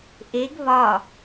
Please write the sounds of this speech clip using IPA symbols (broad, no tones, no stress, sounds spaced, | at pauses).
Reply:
ʔ e ɡ β ɒ